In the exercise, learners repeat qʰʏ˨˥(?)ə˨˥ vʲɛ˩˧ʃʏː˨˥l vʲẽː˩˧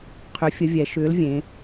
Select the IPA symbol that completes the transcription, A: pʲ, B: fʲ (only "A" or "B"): B